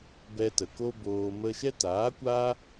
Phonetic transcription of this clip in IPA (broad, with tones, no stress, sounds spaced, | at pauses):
b ɛ˧ t ə˨ k o˦ b oː˧ m ə˧ ʃ ɛ˦ t aː˨˦ kʷ aː˦